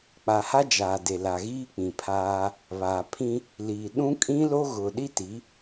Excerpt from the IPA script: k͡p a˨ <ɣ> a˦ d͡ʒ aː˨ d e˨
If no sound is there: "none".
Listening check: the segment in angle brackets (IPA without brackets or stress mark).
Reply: h